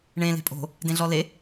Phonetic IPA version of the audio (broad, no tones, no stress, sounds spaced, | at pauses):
ɳ ẽ l e̤ pʼ o̤ | d ẽ ɮ ɔ l e